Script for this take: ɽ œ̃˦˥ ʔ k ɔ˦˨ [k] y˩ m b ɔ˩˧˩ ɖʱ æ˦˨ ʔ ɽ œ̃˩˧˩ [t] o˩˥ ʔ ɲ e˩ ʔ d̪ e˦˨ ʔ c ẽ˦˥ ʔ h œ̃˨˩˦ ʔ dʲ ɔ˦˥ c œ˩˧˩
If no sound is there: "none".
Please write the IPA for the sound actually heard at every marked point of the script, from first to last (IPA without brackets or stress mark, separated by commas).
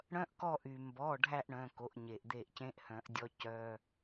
ʔ, k